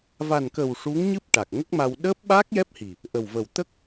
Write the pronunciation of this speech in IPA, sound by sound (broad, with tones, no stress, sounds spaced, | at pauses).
v a˨˩ n k ə˨˩ w ʂ u˧˥ ŋ ɲ ɨ˦˥ p̚ ʈ a˨˩ k̚ ŋ ə˦˥ k̚ m a˧ w ɗ əː˦˥ p̚ ɓ aː˦˥ k̚ j ɛ˦˥ p̚ h i˨˩ | ʔ ə˨˩ w v ə˨˩ w t̪ ə˦˥ k̚